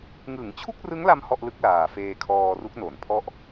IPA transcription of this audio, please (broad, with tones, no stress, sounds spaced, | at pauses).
ŋ ɯ˩˦ ŋ t͡ɕʰ u˥˩ k̚ r ɯ˦˥ ŋ l a˧ m h ɔ˥˩ ʔ l ɯ˦˥ k̚ l aː˨˩ f eː˧ kʰ ɔː˧ r u˦˥ k̚ n o˩˦ n pʰ ɔ˥˩ ʔ